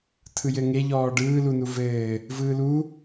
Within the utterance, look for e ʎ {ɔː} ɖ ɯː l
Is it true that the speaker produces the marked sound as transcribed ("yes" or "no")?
yes